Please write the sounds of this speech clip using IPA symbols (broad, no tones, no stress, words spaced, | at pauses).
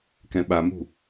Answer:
kɛ̃ɓamṳ